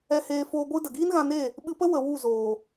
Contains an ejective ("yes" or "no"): no